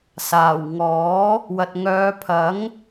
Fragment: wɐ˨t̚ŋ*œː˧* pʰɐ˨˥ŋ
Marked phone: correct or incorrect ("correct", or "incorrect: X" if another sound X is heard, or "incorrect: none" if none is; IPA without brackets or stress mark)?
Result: incorrect: œː˨˧